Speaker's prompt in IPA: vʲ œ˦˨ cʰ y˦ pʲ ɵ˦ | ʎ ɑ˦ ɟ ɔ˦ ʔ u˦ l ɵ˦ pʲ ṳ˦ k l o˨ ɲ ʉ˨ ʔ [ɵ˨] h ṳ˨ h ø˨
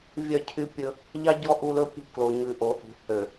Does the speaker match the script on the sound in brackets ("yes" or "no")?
no